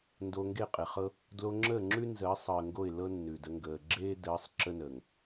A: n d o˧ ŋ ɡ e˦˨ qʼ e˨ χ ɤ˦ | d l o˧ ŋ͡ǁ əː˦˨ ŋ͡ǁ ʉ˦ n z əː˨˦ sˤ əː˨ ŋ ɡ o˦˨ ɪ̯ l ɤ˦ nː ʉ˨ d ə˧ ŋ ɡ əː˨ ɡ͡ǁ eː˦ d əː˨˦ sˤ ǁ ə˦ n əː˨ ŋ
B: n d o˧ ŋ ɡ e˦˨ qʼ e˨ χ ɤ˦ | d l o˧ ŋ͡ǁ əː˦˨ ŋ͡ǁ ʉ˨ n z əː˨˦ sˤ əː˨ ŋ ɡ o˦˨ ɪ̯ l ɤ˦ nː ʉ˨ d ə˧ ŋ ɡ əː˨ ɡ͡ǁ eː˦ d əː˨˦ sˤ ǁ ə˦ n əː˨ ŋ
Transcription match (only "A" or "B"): A